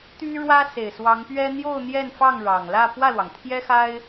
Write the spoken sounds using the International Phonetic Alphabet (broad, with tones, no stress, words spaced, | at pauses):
t̪y˥ɻwä˥ se˨˩ɪ̯swɑ˧˥ŋpɥɛ˥ n̪jo˥˧ʊ̯n̪jɛ˥˧nfɑ˥˩ŋ ɻɑ˨˩ŋlä˥˧ pwä˥˩lwɑ˩ŋt̪ʰjɛ˥xa˥ɪ̯